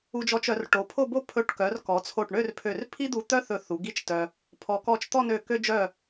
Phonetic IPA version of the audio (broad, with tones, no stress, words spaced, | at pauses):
u˧d͡ʒɔ˧t͡ʃœ˩˧r ʈo˩˧pʰo˥˧bo˥ pʰɵ˧˩ʈkœ˩˧r kɔ˩˧t͡sʰo˧˩ʈɳø˥˧rpʰø˧˩r pʰi˥d̪u˧t̪œ˥ θɵ˧θu˩˧ ɡi˥t͡ʃtœ˧ | pʰɔ˩˧kɔ˧˩t͡ʃt̪ɔ˥˧nø˧˩ kø˧ d͡ʒœ˧˩